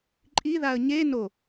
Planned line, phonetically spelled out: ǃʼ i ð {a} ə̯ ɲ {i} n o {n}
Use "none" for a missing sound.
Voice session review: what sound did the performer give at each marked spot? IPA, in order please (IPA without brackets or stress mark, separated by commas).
a, e, none